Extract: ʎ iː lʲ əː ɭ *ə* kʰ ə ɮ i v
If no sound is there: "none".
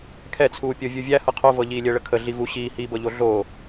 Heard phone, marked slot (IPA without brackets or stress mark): ə